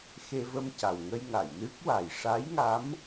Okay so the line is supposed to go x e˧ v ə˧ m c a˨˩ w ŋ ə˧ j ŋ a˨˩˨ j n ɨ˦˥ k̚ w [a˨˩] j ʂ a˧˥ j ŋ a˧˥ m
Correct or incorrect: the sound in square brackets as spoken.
correct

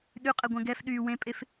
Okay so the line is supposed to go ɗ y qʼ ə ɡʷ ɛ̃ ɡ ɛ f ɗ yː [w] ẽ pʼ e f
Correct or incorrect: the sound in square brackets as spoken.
correct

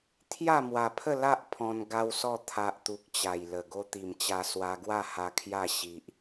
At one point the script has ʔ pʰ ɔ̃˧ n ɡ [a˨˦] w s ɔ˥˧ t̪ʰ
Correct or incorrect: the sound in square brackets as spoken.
incorrect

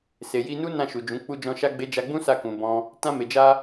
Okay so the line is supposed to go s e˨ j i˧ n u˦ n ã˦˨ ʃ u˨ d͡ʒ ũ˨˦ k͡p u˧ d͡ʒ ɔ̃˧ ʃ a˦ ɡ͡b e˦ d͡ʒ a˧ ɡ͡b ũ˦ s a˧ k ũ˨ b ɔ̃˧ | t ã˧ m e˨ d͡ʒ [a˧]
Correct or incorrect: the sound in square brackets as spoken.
correct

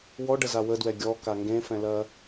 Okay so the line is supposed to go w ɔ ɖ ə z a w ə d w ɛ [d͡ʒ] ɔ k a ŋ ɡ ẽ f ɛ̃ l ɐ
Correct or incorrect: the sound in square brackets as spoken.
incorrect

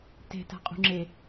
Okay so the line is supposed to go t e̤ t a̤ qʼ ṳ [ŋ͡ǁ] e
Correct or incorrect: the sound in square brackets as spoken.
correct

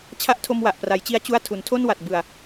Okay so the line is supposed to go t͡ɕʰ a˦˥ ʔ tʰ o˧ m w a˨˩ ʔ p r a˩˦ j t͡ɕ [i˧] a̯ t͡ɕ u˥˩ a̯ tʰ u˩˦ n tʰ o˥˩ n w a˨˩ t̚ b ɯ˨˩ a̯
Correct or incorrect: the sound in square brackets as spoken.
correct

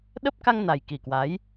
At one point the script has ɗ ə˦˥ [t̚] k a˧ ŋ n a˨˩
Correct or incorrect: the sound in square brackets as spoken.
incorrect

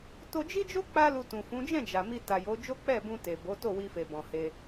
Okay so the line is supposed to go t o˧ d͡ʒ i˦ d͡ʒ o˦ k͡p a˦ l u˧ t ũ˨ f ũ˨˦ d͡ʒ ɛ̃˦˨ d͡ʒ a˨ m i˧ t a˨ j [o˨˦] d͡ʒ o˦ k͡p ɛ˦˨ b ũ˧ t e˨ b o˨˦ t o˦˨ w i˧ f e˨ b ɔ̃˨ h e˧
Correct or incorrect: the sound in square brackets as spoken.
correct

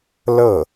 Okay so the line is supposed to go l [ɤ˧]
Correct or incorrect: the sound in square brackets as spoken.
incorrect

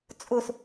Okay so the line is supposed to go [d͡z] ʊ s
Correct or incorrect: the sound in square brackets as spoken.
incorrect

